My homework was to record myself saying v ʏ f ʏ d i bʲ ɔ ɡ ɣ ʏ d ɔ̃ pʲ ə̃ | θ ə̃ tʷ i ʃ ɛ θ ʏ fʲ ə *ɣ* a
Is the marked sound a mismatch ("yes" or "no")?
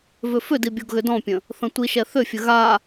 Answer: no